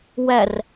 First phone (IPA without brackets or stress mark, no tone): w